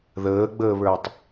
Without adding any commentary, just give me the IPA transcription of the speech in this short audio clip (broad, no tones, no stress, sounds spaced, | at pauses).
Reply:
ð əː ɡ͡b əː β ə˞ tˤ